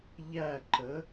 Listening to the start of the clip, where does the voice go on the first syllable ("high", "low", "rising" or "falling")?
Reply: falling